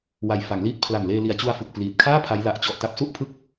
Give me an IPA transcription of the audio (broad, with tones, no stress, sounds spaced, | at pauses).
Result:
w a˨˩ j f a˩˦ ŋ l iː˦˥ t̚ pʰ l a˨˩ n l eː˧ l i˨˩ a̯ t͡ɕ u˧ a̯ f ɯ˨˩ k̚ p l iː˨˩ t̚ kʰ aː˥˩ pʰ a˦˥ j l a˨˩ ʔ t͡ɕ ɔ˨˩ ʔ t a˦˥ p̚ s u˥˩ ʔ pʰ ɯ˥˩ k̚